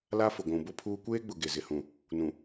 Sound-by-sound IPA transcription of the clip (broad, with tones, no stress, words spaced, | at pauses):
la˦fʊ˨ ɡʷũ˨bʊ˦pʰuː˦ kʷeː˦ɡ͡bʊ˨ ɡe˨zɪ˨hũ˨ | nũ˨